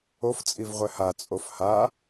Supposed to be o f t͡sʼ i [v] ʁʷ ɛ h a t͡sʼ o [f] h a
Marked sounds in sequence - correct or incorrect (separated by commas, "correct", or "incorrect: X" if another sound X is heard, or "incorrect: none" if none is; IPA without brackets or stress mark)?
correct, correct